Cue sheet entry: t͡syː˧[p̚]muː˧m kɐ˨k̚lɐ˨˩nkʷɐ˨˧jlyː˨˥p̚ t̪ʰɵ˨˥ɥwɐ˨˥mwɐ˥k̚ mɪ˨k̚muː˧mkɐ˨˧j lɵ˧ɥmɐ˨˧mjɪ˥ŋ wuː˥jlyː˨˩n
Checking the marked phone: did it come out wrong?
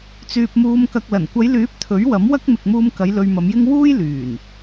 no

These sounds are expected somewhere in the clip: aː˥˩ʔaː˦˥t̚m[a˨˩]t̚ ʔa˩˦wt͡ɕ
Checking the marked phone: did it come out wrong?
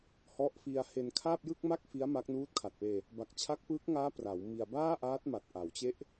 no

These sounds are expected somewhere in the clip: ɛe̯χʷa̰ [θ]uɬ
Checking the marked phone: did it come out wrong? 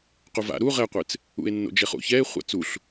yes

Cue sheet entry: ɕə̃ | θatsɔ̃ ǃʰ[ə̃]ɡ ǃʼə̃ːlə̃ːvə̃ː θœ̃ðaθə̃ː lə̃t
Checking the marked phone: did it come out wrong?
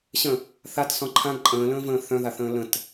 yes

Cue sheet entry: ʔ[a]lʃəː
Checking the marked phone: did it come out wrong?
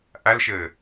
no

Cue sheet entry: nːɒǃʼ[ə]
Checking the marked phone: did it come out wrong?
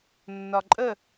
no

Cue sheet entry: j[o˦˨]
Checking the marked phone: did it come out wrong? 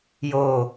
no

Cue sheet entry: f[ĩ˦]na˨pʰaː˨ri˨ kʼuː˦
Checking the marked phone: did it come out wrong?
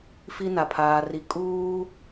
yes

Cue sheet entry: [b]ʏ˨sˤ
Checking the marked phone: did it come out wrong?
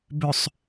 no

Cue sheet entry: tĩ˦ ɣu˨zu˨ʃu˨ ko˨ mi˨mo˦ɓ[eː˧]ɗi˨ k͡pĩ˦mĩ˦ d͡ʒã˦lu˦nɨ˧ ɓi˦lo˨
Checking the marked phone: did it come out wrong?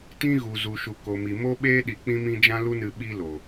yes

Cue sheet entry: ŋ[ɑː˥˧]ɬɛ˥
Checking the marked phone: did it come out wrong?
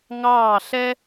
no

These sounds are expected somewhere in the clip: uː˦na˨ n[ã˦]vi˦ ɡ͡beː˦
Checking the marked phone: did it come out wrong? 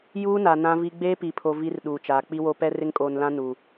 no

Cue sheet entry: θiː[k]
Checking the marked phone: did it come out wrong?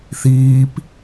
yes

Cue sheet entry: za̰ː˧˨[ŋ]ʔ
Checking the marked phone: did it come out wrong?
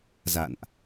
yes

